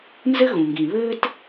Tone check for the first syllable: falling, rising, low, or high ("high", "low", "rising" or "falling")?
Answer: high